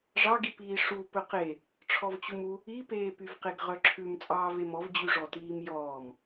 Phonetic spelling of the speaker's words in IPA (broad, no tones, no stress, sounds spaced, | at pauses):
ʐ ɑ ɡ i p iː ʂ u p ɵ q e | ʈ͡ʂʰ ɔ v t͡ɕ u m u | i p eː p y v q e ɡ ʁ œ ǁʰ ʉ m t͡sʼ ɑː v e m ɔ v d͡ʑ y ʐ ɔ t iː m j ɔː m